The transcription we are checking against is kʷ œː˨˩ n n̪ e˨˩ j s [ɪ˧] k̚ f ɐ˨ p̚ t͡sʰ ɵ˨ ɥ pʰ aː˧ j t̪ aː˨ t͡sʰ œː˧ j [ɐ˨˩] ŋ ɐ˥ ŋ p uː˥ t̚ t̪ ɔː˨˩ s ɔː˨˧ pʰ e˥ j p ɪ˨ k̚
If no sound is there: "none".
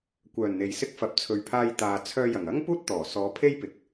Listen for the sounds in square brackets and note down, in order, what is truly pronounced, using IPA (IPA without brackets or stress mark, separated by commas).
ɪ˧, ɐ˨˩